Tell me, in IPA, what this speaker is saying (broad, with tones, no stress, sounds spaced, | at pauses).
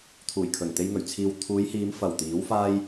t̪ʰ uː˨˩ j kʰ ɵ˨˩ n t̪ e˧ j ŋ ɵ˨˩ ɥ t͡sʰ iː˨ w t̪ʰ uː˨˧ j h iː˨˧ m f ɐ˨˩ w t̪ iː˨˥ w f aː˥ j